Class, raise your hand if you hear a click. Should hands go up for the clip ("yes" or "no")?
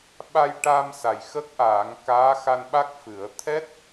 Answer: no